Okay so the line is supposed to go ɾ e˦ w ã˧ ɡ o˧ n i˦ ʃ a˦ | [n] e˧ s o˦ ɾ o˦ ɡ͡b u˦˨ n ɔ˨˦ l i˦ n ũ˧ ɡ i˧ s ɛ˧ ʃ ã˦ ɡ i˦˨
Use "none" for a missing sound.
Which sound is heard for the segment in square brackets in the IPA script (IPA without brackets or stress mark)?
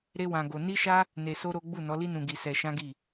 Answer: n